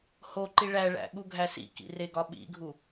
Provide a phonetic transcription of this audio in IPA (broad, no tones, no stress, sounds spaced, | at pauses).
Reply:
h o ǃ i ɭ æ ɭ æ̰ ɠ u ɡʱ æ s ḭ k ḭ r e ɡ ɒ ɓ ḭ ɡʱ u